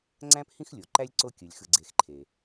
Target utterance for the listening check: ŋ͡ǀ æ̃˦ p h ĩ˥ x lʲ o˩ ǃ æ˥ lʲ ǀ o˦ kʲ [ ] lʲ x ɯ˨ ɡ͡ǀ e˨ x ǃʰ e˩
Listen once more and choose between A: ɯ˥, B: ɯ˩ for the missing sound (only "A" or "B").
B